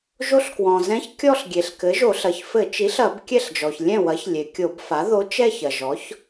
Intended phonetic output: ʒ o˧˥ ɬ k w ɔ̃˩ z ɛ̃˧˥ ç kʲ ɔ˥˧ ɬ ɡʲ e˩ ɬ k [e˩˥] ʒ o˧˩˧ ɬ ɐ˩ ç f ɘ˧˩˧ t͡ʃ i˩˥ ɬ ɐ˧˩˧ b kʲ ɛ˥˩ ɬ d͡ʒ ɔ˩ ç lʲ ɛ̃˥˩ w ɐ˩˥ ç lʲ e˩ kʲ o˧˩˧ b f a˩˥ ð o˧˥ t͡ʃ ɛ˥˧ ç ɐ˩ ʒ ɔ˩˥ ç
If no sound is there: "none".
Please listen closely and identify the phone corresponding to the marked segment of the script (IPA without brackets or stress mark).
ɘ˩˥